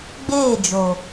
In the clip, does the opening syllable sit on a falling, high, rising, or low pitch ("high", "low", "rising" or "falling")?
falling